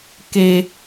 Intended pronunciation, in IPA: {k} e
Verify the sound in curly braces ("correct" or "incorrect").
correct